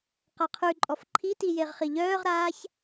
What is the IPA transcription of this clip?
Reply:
q a qʰ ʉ ǃʼ ɔ f ǃʰ i t i j e ʁ χ i ʎ œː ʁ ɾ aː ç

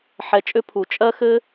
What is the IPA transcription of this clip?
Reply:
ħ ɛ˧ t͡ʃʼ ʏ˦ pʰ u˧ t͡ʃʼ ɜ˦ x ɘ˦

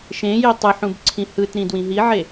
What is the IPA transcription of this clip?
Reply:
ʃ ẽ j e tˤ ɯ ħ ũ b ǀʰ ĩ h ɯ t ɾ ĩ d w ĩ ɦ i ʕ e

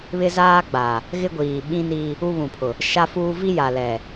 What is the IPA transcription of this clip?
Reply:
β ɪ˦ z aː˦ ɡ͡b a˨ | ɣ ɪ˦ ɡʷ iː˨ ɓ ĩ˦ n i˦ | u˦ β ũ˨ pʰ ʊ˨ | ʃ a˦ f uː˦ v i˦ j a˨ l ɛ˨

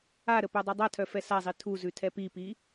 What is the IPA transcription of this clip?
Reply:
a ɾ ə p œ dˤ u dˤ a tʰ œ f ɛ s a zˤ i tʰ u z ʉ tʰ ɛ p i p i

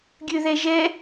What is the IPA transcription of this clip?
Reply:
ɡʲ ø ð ɛ ʒ ɛ

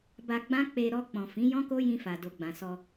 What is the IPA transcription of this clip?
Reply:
b a˧ ɡ͡b ã˦ k͡p e˧ ɾ ɔ˧ k͡p ɔ̃˨ f ĩ˨˦ j ɔ̃˦ k o˦ j ĩ˧ f a˨ d o˨ ɡ͡b ã˨ s ɔ˧

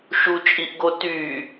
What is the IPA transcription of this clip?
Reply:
ʃ u t͡ʃʼ i ʔ ɡ o t y

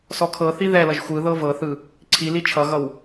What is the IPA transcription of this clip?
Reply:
s ɔ kʰ ɤ θ i ð ɛ l ʌ ʒ xʷ ɯ ð ɤ v ɤ θ ɯ | ǀʰ i l i t͡ʃʰ ʌ ɣ ʌ w

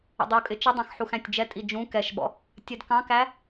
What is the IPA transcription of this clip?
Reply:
ə̰ dˤ u kʼ ɪ t͡ʃ ə dˤ ɑ̃ x ħ u x æ̃ tʲ d͡ʒ ɛ tʼ i d͡ʒ ũ k ɛ ʃ ɓ ɔ̰ | tʲ ɛ d k ɑ̃ k æ

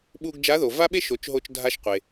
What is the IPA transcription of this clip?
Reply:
ɓ u˧ ɡ d͡ʒ a˧˥ ð o˩ v a˥ ɓ e˥ ʃ o˩˧ t͡ʃ ɦ o˧ t͡ʃ dʱ a˧ ʃ qʷ e˩

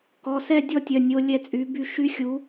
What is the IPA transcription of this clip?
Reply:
k ɔ˩˧˩ s ɛ˥˧ dʲ ɔ˥˧ tʲ œ˩˧˩ nʲ o˦˥ lʲ ɛ˥˧ t͡sʼ y˨˥ b y˥˧ ʃ y˦˥ xʲ u˨˥

